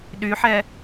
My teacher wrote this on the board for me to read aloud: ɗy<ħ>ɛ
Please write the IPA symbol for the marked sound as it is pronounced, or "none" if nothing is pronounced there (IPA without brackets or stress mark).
ħ